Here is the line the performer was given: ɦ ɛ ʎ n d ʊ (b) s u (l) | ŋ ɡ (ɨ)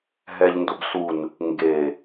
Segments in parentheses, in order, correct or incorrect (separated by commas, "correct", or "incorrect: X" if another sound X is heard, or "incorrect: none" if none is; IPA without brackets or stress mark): correct, incorrect: n, incorrect: e